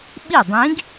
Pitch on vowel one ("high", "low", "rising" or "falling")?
falling